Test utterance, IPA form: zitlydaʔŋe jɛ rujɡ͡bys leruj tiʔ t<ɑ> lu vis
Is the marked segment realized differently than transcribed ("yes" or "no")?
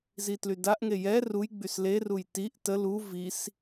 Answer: yes